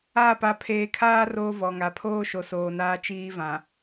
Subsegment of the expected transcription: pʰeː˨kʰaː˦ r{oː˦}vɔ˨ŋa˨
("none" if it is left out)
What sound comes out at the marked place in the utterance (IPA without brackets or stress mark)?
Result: oː˦